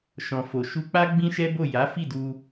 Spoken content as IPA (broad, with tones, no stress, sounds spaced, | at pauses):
ʃ ɔ̃˨ f o˨ ʃ u˧ k͡p a˦ ɡ͡b ĩ˦ ʃ ɛ˦ b o˦˨ j a˨˦ f i˦˨ d u˧